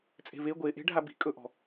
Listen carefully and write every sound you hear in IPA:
t͡sʼe̤ve ɡʷeʔe̤ ɖʱabi̤ kʼɵʔɔ̤

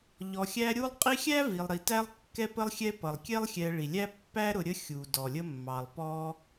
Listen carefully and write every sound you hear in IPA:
ʎɔ˨xʲæ˦ɾʲu˥lˠ qʼi˦xʲæ˥ vi˨lˠɾi˨tæ˥lˠ kːɛ˦pə˦lˠ xʲɛ˦pʌ˩lˠkʲɛ˥lˠ xʲɛ˨ ɭi˩lʲæ˥ pːæ˥ɾʊ˨ɾʲə˦ xʲu˩ dɔ˩lʲə˦mːɑ˩lˠ pɔ˦

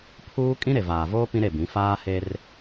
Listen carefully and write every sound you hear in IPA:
pʰuː˦ kʼĩ˦ɾe˨vaː˨voː˦ pĩ˦ɾe˦˨bĩ˨˦ faː˦he˦r

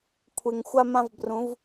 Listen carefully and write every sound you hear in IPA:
kʷʰe˨ŋxʷa˦mã˦v brũ˨˦v

